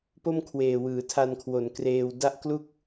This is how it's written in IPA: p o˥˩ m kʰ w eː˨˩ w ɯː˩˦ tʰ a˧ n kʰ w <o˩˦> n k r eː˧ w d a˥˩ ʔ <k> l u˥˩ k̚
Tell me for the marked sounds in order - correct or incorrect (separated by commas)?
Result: correct, correct